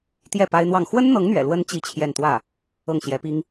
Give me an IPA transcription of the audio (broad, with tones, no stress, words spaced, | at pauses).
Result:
t̪jɛ˥˩ pa˥ɪ̯n̪wɑ˥˩ŋ xwə˥nn̪ɤ˧˥ŋn̪ɥɛ̰˨˩lwə˧˥n t͡ɕi˥t͡ɕʰjɛ˥˧n t̪wä˥˩ | ɤ˥˩ŋɕjɛ˧˥pi˥ŋ